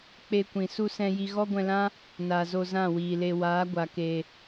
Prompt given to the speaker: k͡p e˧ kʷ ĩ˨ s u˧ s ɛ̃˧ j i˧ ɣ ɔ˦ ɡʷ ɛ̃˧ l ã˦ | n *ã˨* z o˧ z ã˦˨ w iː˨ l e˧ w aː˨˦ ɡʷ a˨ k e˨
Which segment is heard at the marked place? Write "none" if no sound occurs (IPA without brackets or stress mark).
a˨